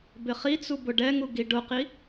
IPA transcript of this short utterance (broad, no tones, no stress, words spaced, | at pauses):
bɪχit͡su bʊɖɛŋu ɡiɖʊqi